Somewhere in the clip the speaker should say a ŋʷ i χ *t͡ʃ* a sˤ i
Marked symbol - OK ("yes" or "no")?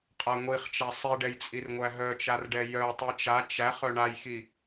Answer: yes